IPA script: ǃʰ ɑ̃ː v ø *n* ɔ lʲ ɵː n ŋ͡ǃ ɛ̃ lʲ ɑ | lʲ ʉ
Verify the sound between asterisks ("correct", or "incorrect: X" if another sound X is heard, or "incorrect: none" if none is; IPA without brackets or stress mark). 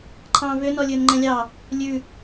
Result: correct